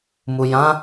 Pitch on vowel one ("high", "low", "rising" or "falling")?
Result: low